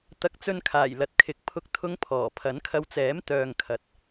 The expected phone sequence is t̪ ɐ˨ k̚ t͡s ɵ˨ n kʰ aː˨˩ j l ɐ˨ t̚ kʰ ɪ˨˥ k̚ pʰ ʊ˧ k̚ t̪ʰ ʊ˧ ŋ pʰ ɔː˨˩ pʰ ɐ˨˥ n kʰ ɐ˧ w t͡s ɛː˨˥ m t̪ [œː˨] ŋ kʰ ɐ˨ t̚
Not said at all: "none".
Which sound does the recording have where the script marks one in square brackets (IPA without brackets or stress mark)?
œː˨